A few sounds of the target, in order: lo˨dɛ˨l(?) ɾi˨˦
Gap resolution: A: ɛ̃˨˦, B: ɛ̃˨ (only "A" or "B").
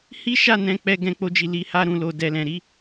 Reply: B